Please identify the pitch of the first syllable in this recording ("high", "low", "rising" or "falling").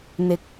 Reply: low